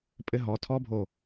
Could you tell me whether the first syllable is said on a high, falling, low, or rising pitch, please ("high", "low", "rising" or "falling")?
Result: high